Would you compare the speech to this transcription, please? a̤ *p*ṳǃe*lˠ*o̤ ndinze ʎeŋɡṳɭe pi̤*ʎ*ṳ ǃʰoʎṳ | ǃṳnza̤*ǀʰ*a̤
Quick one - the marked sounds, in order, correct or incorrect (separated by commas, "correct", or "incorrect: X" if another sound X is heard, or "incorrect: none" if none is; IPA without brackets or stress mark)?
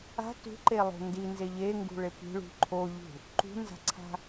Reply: incorrect: t, correct, incorrect: ɭ, correct